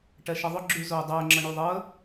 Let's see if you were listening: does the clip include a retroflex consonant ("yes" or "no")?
yes